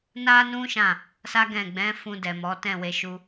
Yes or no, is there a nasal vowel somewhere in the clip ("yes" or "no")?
yes